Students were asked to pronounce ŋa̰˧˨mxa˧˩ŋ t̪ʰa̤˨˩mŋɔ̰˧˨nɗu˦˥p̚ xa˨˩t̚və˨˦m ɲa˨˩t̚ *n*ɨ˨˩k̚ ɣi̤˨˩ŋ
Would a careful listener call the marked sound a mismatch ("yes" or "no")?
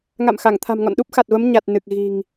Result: no